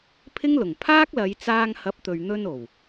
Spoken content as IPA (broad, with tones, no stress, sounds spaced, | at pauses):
pʰ ɪ˥ ŋ l ʊ˨˩ ŋ pʰ aː˥ k̚ l ɐ˨˧ j t͡s aː˧ ŋ h ɐ˨˥ p̚ t̪ ɵ˨ ɥ n̪ ɵ˧ n o˨˩ w